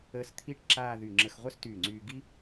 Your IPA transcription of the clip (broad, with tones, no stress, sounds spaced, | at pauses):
əː˧ s t̪ʰ i˥ ʈ ǁ aː˥˧ ð y˧˩ ŋ͡ǁ ə˧ x ʁʷ œ˥ s t yː˧˩ ŋ͡ǀ yː˧ ɡ i˥